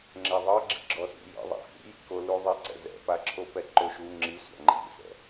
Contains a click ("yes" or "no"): yes